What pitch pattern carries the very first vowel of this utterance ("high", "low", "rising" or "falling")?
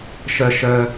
high